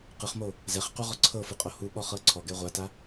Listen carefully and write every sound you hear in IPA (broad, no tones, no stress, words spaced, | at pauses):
qɯχmo | zɛχqu ʁɔǀʰɤfɯ qʼohuɓɔ χɤǀʰɔɡɛ ʁʷata